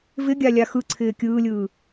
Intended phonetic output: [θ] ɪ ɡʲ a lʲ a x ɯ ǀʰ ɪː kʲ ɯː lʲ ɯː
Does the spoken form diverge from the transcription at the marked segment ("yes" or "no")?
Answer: yes